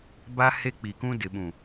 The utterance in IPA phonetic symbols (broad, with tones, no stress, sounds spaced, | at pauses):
b a˦ h e˦ k͡p iː˨ k ũ˦ d ɪ˨ ɓ ũ˨